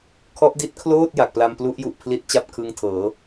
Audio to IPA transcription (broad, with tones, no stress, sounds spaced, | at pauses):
kʰ ɔ˦˥ ʔ d i˦˥ t̚ kʰ l oː˥˩ t̚ j a˨˩ k̚ p l a˧ m p l u˦˥ ʔ j u˨˩ ʔ pʰ l i˦˥ t̚ t͡ɕ a˥˩ p̚ kʰ ɯ˦˥ ŋ tʰ ɤː˩˦